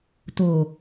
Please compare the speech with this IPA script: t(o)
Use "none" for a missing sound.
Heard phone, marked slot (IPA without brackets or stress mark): o